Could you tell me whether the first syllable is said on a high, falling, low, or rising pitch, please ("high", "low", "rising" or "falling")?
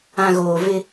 low